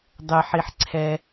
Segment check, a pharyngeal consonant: present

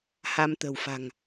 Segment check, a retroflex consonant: absent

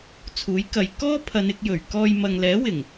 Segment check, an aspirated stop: present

